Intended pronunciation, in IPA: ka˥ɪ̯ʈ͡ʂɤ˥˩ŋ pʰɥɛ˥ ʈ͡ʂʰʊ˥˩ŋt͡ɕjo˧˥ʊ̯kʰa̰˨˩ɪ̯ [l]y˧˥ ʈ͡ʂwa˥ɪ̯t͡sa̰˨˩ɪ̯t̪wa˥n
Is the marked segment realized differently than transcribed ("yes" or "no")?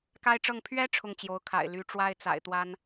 no